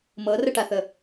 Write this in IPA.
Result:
m ɤ r ə ʈ a θ ə

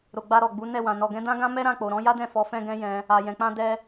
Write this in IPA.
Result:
ɾ o˨ ɡ͡b a˧ ɾ ɔ˨ ɡ͡b u˨˦ n ɛ˦˨ w ã˨ n ɔ˨ ɡ ɛ̃˨˦ d ã˦ ɡ ã˦ m ɛ˦ ɾ ã˦˨ k͡p o˨ ɾ ɔ̃˨˦ j a˦ d ɛ̃˦˨ f ɔ˨˦ f ɛ̃˦ ɡ ɛ̃˦ j ɛ̃˧ | a˨ j ɛ̃˨ k͡p ã˧ d ɛ˦

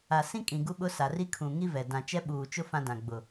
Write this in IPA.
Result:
a˨ s ĩ˦ kʼ ĩ˨ ɡ u˦ ɓ ʊ˦ s a˨ r i˦ kʰ ũ˨ ŋ i˦ v ɛ˨ d ã˨ t͡ʃ ɛ˦ ɓ uː˨ t͡ʃ ʊ˦ f ã˦ d ã˨ ɡ͡b ʊ˨

